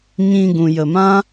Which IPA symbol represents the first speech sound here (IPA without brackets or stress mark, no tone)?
ɲ